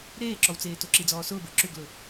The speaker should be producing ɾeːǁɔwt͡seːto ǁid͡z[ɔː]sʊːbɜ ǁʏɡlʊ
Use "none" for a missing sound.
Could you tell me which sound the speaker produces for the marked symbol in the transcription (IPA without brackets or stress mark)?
ɔː